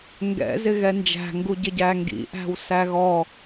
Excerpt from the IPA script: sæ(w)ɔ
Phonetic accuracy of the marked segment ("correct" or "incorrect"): incorrect